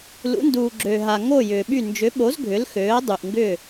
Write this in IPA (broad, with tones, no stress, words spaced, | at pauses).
lṵ˨˦nduː˨ɡ͡ǁøː˨ɦa˨ ŋo˦˨ jʏː˨ɓy˦˨ nd͡ʒʏ˨˦ɓo˨˦z ɡʱʏ˨˦lxøː˨˦ɐ̯ dˤy˨ʔŋɡʏ˦˨